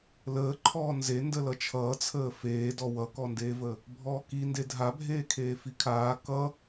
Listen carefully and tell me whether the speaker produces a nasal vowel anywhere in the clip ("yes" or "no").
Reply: no